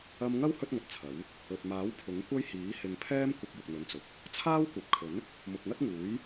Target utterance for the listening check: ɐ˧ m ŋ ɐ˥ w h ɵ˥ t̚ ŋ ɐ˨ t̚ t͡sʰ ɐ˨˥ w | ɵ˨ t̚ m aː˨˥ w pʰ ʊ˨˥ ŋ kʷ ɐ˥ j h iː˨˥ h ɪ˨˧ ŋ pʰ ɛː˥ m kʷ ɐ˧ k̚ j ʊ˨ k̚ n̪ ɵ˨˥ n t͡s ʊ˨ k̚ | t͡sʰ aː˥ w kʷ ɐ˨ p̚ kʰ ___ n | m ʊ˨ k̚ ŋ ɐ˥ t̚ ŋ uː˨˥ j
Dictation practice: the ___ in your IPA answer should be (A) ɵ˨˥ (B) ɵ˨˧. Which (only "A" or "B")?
A